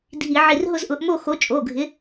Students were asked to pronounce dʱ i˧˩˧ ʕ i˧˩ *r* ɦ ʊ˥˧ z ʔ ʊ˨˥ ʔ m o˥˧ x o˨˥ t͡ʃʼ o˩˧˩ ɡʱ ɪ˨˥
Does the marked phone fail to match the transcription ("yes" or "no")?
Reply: no